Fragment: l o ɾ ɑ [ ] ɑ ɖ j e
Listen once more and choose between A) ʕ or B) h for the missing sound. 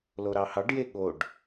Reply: B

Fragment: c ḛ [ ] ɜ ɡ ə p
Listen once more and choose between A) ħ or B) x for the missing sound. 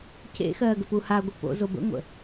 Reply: B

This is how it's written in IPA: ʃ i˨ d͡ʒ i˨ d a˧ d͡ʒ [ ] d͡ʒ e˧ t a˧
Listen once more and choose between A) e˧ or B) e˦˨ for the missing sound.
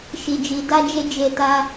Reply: A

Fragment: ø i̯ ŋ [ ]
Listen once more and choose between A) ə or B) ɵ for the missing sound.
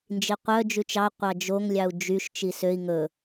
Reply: B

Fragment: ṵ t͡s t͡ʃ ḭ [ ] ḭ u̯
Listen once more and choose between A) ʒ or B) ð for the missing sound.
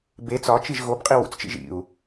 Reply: A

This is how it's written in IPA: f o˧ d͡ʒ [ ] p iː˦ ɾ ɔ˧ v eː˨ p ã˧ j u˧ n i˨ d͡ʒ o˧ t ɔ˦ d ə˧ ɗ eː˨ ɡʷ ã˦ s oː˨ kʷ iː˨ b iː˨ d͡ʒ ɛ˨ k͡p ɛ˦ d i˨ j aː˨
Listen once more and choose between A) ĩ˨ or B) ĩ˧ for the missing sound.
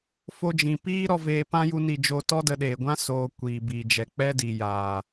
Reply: A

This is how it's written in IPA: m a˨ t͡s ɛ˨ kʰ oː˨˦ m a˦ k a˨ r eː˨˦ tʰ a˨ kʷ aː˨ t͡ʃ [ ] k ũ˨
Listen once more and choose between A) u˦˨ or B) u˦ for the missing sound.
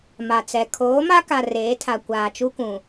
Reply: B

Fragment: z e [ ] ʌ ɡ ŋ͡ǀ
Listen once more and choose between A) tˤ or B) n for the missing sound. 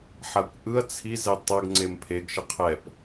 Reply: A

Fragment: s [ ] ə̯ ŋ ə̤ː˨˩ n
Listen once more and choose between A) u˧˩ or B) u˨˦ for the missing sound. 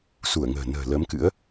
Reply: A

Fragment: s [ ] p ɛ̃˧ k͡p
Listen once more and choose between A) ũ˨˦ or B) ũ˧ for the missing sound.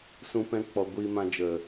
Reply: B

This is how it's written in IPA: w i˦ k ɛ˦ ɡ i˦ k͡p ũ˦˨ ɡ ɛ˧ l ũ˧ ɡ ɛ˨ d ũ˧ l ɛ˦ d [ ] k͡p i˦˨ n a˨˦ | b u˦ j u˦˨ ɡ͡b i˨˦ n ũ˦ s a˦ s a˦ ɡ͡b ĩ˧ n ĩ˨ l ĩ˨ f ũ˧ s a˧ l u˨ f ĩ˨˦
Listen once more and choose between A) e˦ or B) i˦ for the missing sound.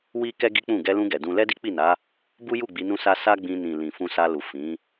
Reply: B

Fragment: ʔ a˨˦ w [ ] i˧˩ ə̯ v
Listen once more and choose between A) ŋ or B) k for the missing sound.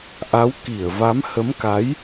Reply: B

